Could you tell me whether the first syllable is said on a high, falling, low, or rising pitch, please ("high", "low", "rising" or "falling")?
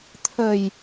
low